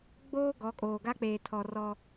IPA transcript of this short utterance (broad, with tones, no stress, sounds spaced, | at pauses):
ɡ͡b oː˦ ɡ ɔ˨˦ kʼ oː˨ ɡ a˦ k͡p eː˨ tʰ ɔ˨ r ɔ˦